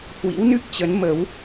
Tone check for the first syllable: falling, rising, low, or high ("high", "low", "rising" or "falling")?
rising